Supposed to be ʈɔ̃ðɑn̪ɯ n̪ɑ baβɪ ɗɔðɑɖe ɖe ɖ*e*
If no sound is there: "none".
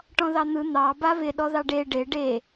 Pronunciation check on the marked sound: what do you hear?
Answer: e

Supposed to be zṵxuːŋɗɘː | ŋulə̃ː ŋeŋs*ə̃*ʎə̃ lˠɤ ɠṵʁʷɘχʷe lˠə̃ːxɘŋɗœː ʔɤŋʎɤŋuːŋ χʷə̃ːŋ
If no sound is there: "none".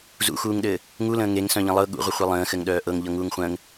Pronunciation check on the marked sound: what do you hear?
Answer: œ̃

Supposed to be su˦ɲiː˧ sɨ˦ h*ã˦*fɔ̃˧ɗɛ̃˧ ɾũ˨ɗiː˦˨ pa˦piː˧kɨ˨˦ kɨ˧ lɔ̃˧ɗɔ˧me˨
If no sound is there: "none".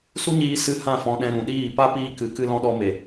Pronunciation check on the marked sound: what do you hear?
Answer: ã˦˨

